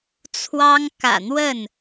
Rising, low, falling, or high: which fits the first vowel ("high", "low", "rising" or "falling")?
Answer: high